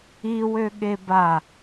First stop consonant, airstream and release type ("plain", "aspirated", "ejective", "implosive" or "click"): implosive